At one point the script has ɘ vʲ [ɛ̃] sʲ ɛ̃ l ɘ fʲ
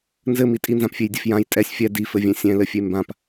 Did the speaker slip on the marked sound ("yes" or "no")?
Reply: no